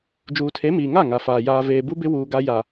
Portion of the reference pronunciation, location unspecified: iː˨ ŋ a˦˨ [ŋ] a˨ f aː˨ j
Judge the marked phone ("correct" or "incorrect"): correct